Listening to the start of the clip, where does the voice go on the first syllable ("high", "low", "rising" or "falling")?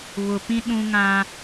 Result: low